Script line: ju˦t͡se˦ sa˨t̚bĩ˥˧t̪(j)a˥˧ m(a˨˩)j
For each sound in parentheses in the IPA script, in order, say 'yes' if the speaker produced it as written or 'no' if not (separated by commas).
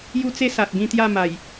yes, yes